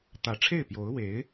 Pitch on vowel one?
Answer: rising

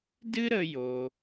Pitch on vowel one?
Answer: high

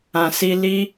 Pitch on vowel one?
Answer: low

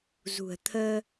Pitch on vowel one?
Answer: low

